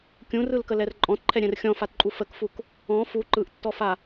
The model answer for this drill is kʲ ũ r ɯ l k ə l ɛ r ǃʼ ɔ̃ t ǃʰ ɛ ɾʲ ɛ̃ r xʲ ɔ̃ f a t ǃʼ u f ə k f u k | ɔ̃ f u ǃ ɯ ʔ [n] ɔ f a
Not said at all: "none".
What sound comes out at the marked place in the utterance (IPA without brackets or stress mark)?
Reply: tː